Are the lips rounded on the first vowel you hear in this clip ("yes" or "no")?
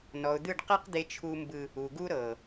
yes